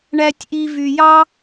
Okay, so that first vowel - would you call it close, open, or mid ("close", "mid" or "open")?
open